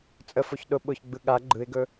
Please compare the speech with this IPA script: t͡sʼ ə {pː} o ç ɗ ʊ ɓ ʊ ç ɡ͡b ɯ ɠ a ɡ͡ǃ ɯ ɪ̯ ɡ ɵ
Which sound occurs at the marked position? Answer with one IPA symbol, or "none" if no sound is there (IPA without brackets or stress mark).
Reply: f